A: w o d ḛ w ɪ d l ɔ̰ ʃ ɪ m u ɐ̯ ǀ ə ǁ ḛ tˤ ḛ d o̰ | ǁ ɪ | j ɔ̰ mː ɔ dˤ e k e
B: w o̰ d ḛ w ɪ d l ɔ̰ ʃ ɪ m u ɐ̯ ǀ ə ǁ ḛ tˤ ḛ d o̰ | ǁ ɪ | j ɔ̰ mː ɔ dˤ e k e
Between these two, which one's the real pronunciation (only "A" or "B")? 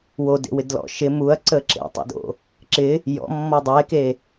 A